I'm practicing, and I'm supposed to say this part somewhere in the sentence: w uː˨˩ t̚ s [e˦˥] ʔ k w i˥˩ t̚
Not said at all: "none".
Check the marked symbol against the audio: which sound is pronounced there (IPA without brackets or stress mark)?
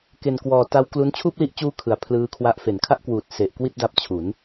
e˨˩